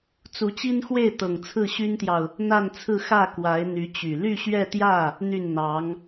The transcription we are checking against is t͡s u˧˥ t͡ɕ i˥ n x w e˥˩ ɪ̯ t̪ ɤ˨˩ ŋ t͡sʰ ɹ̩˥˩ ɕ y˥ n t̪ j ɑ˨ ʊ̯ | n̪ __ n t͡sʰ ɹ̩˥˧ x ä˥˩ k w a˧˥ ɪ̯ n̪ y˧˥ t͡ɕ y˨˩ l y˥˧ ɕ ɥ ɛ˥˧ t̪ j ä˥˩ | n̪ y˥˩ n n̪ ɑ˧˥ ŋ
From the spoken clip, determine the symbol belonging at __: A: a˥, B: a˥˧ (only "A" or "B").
B